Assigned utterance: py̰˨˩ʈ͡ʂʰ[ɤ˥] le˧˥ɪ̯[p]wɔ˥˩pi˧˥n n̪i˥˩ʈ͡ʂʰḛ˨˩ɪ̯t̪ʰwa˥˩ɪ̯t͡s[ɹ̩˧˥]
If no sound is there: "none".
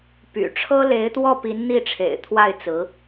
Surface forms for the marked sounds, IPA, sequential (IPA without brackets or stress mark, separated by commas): ɤ˥, t̪, ɹ̩˧˥